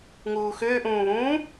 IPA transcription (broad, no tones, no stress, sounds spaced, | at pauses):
ŋ uː x ʏː ʔ ũː β ũː